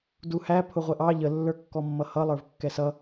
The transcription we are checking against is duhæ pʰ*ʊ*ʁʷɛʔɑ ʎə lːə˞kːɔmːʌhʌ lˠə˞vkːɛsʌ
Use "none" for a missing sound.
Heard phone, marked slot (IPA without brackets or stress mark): ʊ